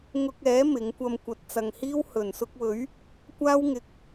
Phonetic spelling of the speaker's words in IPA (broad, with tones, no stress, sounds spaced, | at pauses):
ŋ ʊ˧ k̚ ɛː˨˥ m ɪ˨˥ ŋ kʷ ɐ˧ m kʷ ɐ˨ t̚ t͡s ɐ˨ ŋ h iː˥ w h ɵ˨˩ n s ʊ˧ k̚ w ɵ˨˥ ɥ | kʷ aː˥ w ŋ ɪ˨ k̚